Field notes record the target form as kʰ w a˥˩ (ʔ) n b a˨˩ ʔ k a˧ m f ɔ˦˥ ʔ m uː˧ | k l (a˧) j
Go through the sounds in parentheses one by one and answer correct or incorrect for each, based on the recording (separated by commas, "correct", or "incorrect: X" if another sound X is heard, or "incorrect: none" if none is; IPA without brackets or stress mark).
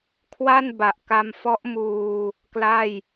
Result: incorrect: none, incorrect: a˥˩